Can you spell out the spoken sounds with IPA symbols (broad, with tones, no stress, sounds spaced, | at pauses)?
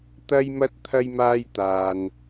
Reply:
t̪ ɐ˥ j m ɐ˥ t̚ t̪ʰ ɐ˥ j m aː˥ j t̪ aː˧ n